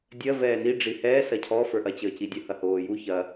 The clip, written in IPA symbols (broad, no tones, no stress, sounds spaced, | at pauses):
dʲ ɜ v ɛː n i ɖ͡ʐ i h ɛː s ɐ cʰ ɔ f ə˞ ʔ ɐ t͡ɕ əː c i dʲ ə h ɐ h oː j u ç ɐ